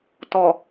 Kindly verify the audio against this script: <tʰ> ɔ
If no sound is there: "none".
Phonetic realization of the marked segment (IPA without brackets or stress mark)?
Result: t